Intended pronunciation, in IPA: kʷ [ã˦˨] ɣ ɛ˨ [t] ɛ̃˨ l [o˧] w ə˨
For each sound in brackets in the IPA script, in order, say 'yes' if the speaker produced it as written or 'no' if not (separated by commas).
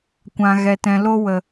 no, yes, yes